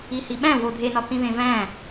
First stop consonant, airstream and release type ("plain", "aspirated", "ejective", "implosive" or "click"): implosive